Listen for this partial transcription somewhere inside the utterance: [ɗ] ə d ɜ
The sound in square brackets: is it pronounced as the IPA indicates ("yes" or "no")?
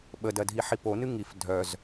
no